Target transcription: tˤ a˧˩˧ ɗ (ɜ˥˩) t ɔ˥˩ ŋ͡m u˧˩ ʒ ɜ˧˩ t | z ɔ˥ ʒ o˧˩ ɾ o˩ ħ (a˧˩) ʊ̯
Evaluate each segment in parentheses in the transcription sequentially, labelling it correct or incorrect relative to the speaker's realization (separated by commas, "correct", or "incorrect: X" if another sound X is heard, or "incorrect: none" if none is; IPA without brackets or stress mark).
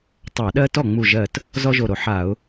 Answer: incorrect: ɜ˥, incorrect: a˧˩˧